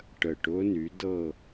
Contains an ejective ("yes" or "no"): no